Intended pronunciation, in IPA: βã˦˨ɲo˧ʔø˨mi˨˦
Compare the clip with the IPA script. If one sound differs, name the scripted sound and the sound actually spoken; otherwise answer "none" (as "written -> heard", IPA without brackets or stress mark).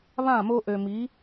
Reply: ɲ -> m